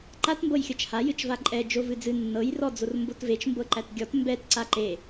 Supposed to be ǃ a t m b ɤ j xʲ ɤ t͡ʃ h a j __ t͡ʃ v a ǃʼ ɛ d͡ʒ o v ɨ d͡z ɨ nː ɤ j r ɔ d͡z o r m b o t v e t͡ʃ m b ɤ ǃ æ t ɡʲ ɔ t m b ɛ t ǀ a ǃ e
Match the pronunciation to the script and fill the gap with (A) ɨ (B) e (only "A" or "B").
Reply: A